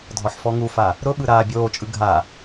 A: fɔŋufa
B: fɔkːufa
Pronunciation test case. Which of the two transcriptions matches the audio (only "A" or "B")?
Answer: A